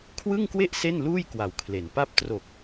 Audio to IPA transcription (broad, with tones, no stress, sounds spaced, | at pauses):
kʰ w ɯ˥˩ ŋ k w e˥˩ ʔ s e˥˩ n l uː˥˩ j k w a˨˩ w kʰ l e˩˦ n p a˦˥ p̚ t r o˨˩ k̚